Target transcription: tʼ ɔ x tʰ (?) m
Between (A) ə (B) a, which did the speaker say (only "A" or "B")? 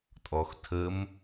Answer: A